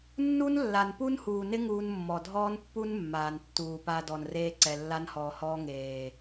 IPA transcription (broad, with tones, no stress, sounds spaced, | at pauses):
nː u˦ n lː a˨ n p u˦ n h uː˨ n ɪ˦ ŋ uː˧ n mː ɔ˨ dʱ ɔː˦ n pː u˦ n mː aː˨ n tː uː˨ p a˧ d ɔ˨ n r eː˧ ǀ ɛ˨ lː a˧ n h ɔː˨ h ɔː˧ ŋ eː˨